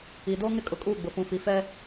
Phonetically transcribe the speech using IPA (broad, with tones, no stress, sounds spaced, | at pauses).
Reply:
i˨ d o˦ ŋ ɪ˦ kʼ ʊ˨ kʼ uː˦˨ ɡ͡b ʊ˨ f ũ˨ f i˨ f ɛ˦